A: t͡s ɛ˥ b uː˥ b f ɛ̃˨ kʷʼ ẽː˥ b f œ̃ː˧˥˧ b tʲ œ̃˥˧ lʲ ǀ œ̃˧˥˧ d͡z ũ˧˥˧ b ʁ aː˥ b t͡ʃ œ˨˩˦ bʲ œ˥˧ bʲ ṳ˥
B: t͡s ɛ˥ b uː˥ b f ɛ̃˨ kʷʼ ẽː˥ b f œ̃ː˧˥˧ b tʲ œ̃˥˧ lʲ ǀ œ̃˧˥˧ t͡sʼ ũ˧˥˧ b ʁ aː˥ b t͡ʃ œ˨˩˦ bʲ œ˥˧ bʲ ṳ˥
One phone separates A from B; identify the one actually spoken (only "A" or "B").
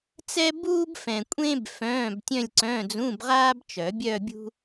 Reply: A